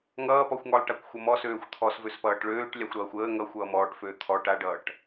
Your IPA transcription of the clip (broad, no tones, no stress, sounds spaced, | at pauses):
ŋ ʌː p ɔ xʷ ŋ ɔ lˠ ʈ a kʷ xʷ ʌ m ɔ s øː xʷ t̪ʰ ɔ s v ø s p ʌː ʈ ɭ øː ʈ lʲ a xʷ ɾ ʌː xʷ əː ŋ ʌ xʷ ʌː m ɔː ʈ f øː t̪ʰ ɔ ʈ a ɖ ʌː ʈ